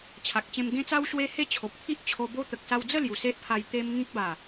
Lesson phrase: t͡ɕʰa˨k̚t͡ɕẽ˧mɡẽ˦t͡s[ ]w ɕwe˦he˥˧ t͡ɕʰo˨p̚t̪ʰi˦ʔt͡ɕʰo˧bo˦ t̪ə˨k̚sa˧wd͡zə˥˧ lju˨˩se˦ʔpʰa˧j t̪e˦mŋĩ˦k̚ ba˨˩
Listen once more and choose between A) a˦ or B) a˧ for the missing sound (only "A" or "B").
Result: A